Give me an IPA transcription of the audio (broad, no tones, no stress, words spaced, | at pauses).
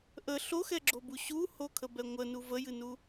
ʔə ɬoxɛɡ͡ǁobu ɕuhokʰəbɛ ŋʷənu vəjɨnu